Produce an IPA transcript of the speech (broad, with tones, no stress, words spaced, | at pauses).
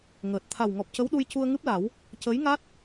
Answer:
ŋəː˨˩t̚ t̪ʰa˨˩wŋɔ˨˩p̚cə˧˥w ɗu˧jcu˧ə̯ŋɨ˦˥p̚la˨˩˦w | cə˧˥jŋa˦˥t̚